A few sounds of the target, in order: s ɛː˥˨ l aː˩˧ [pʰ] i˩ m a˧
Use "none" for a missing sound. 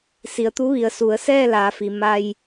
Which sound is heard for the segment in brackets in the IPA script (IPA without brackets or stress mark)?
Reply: f